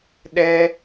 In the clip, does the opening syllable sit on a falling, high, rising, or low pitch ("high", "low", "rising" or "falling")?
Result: high